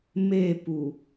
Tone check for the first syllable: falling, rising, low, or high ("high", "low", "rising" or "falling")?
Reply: falling